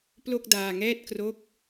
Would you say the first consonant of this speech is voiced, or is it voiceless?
voiceless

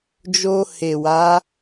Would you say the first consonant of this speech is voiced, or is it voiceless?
voiced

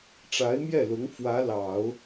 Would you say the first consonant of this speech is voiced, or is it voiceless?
voiceless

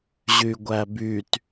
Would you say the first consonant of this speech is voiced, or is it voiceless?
voiced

